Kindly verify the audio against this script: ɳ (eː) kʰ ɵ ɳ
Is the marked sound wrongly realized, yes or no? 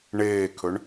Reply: no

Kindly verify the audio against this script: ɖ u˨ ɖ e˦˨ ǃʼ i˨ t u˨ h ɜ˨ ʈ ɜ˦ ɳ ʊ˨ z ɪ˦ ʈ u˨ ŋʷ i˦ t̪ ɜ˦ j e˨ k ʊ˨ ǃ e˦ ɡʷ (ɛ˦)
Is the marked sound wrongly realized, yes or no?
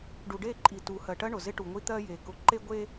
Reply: yes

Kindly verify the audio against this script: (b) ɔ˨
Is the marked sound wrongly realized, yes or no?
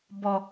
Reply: no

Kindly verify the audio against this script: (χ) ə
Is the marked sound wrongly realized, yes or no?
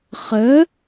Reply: no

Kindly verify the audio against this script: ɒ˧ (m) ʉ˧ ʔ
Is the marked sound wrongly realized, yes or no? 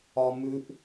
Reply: no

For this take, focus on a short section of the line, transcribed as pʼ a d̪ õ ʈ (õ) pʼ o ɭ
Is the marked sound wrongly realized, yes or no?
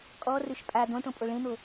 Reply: no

